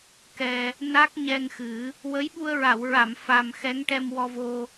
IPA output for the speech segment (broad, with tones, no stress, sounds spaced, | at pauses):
k ɛ˧ | n a˦˥ k̚ ɲ ɛ˧ ŋ x ɨ˨˩˦ | w ə˧˥ j ɓ u˧ ə̯ ɹ a˨˩˨ w ɹ a˨˩˨ m f a˨˩ m x ɛ˧˥ ŋ ʈ ɛ˧ m w ɔ˧ v o˧